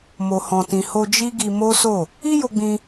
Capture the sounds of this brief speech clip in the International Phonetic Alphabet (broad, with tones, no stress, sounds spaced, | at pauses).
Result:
m o˨ h ɔ̃˨ t ĩ˨ h o˧ d͡ʒ i˦ ɡ i˧ m o˦ s o˦˨ | i˦ j o˧ ɡ͡b ĩ˧